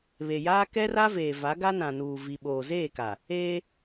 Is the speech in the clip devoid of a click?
yes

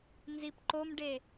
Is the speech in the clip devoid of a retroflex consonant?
no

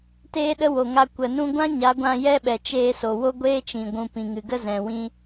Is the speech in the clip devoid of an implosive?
no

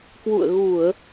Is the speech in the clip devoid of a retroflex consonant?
yes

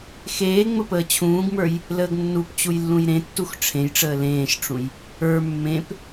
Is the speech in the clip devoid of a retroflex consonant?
no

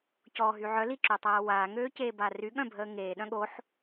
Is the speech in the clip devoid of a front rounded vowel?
no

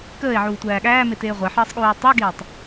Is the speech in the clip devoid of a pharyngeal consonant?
no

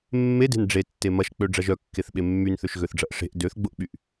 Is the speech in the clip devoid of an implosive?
no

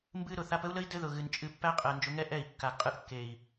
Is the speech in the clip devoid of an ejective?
no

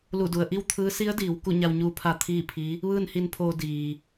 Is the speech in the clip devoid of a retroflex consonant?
yes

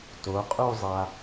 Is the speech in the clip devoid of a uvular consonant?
no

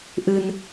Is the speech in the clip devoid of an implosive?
yes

